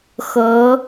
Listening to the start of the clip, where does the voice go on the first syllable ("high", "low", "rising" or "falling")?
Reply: rising